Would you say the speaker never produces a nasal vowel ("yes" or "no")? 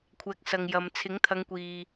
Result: yes